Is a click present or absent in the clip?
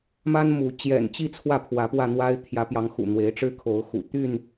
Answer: absent